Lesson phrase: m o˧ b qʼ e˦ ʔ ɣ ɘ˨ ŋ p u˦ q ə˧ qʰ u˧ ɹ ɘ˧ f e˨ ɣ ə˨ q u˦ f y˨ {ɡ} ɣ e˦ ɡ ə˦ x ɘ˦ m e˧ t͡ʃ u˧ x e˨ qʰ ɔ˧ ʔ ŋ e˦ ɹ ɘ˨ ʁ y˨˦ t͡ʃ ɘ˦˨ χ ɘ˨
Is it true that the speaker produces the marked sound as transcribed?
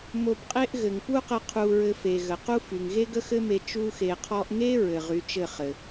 no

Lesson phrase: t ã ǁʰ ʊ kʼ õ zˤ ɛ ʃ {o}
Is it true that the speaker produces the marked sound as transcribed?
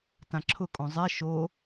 yes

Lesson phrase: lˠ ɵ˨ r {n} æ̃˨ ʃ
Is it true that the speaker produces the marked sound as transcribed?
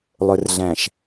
no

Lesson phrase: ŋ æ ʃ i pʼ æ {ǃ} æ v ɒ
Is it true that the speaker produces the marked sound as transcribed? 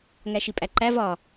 yes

